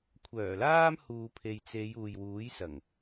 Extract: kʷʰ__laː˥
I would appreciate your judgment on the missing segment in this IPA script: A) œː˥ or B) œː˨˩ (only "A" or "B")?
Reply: B